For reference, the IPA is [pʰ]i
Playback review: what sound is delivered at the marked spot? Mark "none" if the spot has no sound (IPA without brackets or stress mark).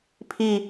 pʰ